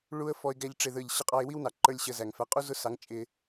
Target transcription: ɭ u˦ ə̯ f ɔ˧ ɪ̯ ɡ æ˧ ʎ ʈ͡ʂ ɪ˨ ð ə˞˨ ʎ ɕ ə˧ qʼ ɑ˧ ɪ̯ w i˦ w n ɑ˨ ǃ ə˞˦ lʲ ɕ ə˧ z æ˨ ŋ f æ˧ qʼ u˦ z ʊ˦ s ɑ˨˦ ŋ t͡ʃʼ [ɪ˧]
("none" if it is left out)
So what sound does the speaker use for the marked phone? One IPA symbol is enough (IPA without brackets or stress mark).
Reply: ɪ˧